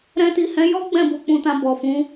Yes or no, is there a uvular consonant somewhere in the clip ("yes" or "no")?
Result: no